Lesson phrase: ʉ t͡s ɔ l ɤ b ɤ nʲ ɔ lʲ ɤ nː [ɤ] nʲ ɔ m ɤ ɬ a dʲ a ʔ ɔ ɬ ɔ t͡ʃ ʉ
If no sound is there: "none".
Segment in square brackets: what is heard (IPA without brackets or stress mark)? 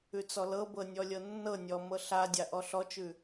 ɤ